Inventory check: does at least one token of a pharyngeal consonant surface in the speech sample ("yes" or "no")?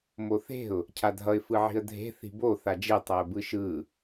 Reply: yes